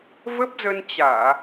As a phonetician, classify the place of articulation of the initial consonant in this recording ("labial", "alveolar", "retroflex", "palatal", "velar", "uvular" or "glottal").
labial